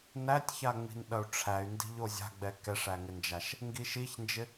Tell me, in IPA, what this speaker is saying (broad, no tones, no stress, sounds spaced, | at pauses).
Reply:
n æ tʲ ç a ŋ͡m i̤ n ɗ ɐ u̯ ʈ͡ʂʰ æ y̯ n d i̤ ʎ o zʲ a̤ ɡ͡b ɛ k ɛ ʂ æ ŋ ɪ n d͡ʒ a ʃ | ŋ ɡ i ʃ i ç n d͡ʒ ɪ